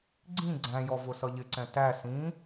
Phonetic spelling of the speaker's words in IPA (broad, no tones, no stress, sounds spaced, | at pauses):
ɡ͡ǀ ĩ ɡ͡ǀ æ̃ j ɔ v ʊ s ʌ ʎ ɪ ǀ ɛ̃ t æ s ĩ